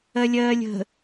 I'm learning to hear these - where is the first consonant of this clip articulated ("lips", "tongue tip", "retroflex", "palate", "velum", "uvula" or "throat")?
tongue tip